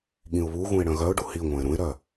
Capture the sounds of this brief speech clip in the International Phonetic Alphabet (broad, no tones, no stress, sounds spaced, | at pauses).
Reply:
ɠ ĩ ʊ̯ β u ɣ ũ ɪ̯ ɽ œ̃ ɣ œ ʊ̯ ɖ u h i ŋʷ ɛ̃ ɪ̯ ɾ ũ ɪ̯ ɾ œ